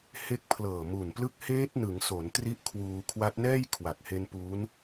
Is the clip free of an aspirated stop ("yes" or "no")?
no